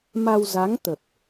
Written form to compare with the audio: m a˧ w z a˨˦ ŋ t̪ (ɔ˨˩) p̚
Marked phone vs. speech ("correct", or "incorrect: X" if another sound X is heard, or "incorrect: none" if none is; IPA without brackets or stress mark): incorrect: ə˨˩